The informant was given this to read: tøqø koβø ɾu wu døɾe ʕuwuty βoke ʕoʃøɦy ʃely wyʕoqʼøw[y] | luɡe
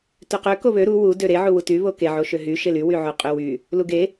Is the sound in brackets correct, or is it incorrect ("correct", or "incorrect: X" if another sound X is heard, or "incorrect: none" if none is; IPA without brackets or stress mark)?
correct